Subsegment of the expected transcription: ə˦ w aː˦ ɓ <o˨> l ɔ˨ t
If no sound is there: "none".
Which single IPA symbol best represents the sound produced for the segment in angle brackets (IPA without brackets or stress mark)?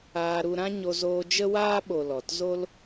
o˨